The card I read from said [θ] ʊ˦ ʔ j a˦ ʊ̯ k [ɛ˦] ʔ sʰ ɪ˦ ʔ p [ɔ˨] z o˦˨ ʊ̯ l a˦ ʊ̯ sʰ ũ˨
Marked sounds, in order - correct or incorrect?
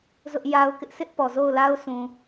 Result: incorrect, incorrect, correct

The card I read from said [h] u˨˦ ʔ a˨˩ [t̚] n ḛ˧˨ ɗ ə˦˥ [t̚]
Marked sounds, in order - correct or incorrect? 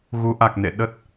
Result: incorrect, incorrect, correct

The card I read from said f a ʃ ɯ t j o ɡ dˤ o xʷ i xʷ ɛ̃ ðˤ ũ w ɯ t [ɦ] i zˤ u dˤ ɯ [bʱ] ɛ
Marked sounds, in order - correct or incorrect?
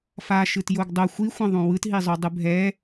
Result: correct, correct

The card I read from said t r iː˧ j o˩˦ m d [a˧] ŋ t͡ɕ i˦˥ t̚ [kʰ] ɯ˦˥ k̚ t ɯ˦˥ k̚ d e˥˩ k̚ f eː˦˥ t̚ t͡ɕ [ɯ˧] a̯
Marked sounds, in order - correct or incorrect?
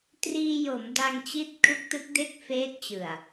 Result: correct, correct, incorrect

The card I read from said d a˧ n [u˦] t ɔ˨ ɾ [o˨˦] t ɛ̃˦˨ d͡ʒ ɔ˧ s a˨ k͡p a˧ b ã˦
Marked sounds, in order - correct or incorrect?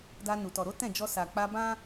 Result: incorrect, correct

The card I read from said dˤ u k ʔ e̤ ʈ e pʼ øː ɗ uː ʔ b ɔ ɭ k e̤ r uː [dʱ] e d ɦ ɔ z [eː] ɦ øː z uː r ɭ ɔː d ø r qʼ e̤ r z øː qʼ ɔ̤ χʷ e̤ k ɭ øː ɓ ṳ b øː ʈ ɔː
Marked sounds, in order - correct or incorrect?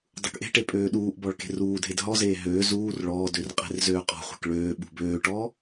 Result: correct, correct

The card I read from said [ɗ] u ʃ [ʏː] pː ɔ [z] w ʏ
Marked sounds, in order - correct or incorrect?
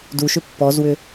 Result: incorrect, incorrect, correct

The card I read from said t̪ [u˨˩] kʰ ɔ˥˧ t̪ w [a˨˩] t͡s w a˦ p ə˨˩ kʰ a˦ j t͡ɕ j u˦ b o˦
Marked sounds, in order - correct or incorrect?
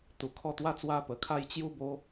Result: correct, incorrect

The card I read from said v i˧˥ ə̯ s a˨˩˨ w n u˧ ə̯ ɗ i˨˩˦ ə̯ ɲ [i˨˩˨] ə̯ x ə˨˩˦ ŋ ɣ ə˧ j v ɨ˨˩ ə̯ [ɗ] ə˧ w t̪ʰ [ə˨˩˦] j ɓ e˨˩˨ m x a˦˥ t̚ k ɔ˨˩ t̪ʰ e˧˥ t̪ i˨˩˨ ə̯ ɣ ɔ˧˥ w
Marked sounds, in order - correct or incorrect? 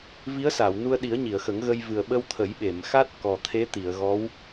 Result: correct, incorrect, correct

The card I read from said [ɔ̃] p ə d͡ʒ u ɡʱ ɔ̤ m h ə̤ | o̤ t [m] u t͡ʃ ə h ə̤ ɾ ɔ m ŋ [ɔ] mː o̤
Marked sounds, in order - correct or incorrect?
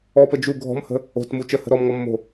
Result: incorrect, correct, correct

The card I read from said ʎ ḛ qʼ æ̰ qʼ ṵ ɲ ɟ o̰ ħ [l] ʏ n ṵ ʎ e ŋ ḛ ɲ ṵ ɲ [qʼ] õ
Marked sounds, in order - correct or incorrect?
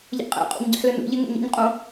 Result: correct, correct

